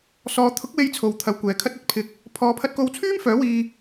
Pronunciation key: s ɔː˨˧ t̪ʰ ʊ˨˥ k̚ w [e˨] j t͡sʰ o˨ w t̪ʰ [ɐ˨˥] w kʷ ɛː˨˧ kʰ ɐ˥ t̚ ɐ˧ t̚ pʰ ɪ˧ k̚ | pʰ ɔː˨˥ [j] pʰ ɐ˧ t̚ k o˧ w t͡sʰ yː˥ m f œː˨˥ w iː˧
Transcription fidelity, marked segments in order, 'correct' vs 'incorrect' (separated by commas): incorrect, incorrect, incorrect